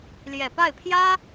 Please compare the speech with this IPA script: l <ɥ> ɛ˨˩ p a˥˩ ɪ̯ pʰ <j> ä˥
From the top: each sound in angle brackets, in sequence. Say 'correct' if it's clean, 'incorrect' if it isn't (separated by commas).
incorrect, correct